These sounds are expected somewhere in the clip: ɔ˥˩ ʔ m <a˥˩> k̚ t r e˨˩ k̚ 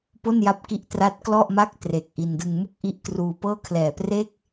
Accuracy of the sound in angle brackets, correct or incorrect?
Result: correct